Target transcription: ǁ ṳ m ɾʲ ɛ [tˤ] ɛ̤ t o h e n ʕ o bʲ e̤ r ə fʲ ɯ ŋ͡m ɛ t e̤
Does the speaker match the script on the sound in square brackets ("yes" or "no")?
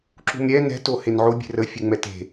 no